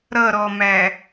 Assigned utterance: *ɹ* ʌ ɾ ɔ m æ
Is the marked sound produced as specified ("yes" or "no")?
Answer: no